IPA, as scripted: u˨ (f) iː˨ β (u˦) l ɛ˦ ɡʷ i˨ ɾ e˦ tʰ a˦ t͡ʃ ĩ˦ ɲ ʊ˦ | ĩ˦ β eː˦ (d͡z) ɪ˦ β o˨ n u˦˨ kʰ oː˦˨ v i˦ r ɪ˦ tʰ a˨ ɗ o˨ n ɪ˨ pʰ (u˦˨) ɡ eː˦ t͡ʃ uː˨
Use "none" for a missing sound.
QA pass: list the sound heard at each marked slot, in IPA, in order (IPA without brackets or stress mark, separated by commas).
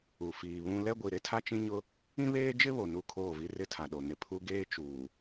f, ũ˦, d͡ʒ, u˦